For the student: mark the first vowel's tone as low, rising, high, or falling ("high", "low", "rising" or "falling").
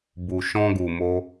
low